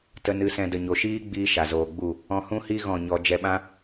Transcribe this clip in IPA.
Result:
t ə˧ n ɨ˧ s ɛ̃˧ d ə˨ ɲ o˨ ʃ iː˦ ɡ͡b iː˧ ʃ a˨ z oː˨ ɡ͡b u˦˨ | ɔ̃˧ h ũ˦ h i˦ ɣ ɔ̃˦˨ ɲ ɔ˧ d͡ʒ ɛ˧ ɓ ã˦

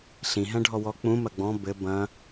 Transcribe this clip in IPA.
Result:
ɬ ĩ ɦ ɛ̃ ɖʱ ɔ w ɔ k͡p ũ m ɐ ɡ͡b ɔ̃ b ɘ b ɐ̃

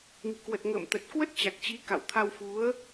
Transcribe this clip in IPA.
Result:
ŋ i̤˨˩ k w ə˨˩ t̚ ŋ ə̰ː˧˨ m t̪ ə˨˩ t̚ k w ə˦˥ t̚ t͡ɕ a˨˩ k̚ t͡ɕ i˨˦ k a̰˧˨ w t̪ʰ a˧ w f u˨˦ ə̯

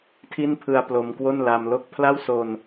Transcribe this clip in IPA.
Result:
tʰ i˥˩ n pʰ ɯ˧ a̯ p l o˧ m k w o˥˩ n l a˧ m l o˥˩ k̚ pʰ l a˥˩ w s o˧ n

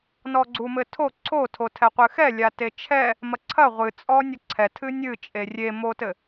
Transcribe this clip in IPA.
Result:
n ɔ ɡ͡ǀ u m ɘ tʰ o ǀʰ o tʰ o tʰ ɛ qʷ ɨ x ɛ lʲ a t e t͡ʃʰ ɛ | m ɐ ǀʰ ɐ ʁʷ ɨ t͡sʼ ɔ nʲ ɐ ǀʰ ɛ tʰ ɨ nʲ ɨ t͡ʃʼ e rʲ e m o t ɘ

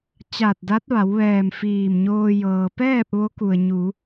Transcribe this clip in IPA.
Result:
t͡ɕ aː˧˩ t̚ d a˧˥ t̚ ʋ a˩˧ w ʋ ɛː˧˩ m f iː˧˩ m ɲ oː˧ j ɤː˩ p ɛː˥˨ p̚ ʋ o˧˥ k u˩ ə̯ ɲ u˩˧

